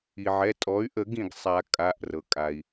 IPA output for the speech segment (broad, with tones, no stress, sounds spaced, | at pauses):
i˩ ʕ ɛ˩˧˩ tʼ ɔ˩˥ y̯ ʔ ə˨˩˦ ɡ ĩ˩ ɡ sˤ a˨˩˦ kʼ a˩˧˩ ʔ r ɤ˩ kʼ a˩ i̯